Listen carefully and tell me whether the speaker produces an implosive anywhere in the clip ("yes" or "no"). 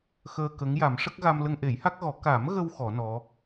no